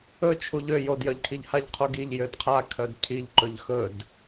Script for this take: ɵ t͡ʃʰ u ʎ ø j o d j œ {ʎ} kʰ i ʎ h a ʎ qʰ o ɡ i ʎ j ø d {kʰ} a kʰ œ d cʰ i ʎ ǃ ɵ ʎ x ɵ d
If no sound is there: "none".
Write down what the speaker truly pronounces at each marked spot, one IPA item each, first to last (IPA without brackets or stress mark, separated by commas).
ʎ, qʰ